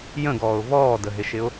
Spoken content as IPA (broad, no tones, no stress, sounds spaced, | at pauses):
j ə̃ ɡ ɔː ʊ̯ v ɔː d ə ɦ ɪ ʃ ɪ ʊ̯